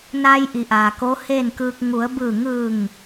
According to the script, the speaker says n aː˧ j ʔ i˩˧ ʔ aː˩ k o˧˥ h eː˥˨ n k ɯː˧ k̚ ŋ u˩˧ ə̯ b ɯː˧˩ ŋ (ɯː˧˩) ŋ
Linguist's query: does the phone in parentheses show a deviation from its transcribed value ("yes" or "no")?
no